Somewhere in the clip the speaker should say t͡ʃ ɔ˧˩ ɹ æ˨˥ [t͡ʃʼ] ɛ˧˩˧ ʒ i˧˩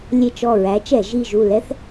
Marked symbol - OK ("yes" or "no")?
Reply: no